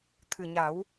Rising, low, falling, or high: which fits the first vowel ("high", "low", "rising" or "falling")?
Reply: low